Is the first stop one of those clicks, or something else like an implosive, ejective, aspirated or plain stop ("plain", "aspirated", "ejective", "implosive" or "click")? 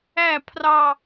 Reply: aspirated